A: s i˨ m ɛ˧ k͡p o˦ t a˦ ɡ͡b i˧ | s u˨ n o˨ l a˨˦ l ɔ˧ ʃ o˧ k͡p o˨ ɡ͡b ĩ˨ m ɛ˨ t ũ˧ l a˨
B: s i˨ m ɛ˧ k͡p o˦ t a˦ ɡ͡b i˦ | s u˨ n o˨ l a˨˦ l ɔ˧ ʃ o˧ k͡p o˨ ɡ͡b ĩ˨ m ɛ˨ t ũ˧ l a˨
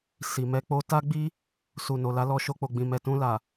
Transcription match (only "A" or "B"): B